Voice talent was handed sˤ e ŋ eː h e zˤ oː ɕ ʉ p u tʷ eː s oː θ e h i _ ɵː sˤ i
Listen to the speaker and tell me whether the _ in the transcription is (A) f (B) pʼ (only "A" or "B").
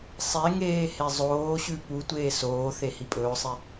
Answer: B